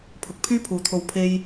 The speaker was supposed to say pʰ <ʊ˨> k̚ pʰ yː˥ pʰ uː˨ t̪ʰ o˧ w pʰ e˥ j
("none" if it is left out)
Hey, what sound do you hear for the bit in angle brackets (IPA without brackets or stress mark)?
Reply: ʊ˨